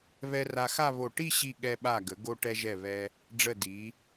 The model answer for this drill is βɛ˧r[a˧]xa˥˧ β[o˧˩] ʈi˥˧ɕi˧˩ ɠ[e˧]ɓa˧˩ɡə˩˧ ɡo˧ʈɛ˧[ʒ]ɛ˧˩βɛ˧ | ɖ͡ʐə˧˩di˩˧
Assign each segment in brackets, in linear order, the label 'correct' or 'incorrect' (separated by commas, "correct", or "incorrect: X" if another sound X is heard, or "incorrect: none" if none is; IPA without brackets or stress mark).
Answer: correct, correct, incorrect: ɛ˧, correct